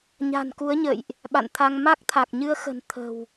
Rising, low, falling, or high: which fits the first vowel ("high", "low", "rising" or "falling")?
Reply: low